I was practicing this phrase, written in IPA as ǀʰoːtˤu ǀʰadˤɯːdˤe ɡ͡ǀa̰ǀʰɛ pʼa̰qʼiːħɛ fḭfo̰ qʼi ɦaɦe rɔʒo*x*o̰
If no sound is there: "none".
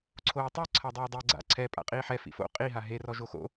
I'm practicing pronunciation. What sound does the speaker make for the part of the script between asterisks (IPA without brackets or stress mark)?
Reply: x